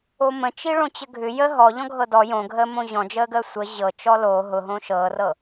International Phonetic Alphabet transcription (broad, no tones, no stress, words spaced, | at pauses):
omə̃t͡ʃiɭõ t͡ɕəɡʱʏ jə ɦɔʎɔ̃ ɡʱɤdɔ jõɡʱəːmõ ʑɔ̃d͡ʒəːɡəː sʷə ʑɤ t͡ʃɔlo ɦʊɦõ ʃɤːrɤ